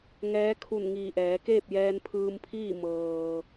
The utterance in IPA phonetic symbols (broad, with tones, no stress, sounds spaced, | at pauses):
ŋ ɛː˧˥ kʰ u˧˩ n ŋ iː˧˩ ʔ ɛː˩˧ k eː˥˨ p̚ j ɛː˧ n pʰ ɯː˧ m pʰ iː˥˨ m ɤː˩